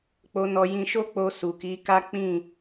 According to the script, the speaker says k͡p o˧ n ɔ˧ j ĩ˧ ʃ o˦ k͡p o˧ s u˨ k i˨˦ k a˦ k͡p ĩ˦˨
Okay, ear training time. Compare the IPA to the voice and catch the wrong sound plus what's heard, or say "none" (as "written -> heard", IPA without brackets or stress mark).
none